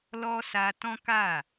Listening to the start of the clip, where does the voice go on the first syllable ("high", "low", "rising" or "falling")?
high